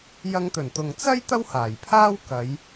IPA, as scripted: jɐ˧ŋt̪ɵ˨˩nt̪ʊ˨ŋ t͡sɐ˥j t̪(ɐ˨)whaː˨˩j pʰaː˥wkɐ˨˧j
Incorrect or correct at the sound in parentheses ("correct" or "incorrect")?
incorrect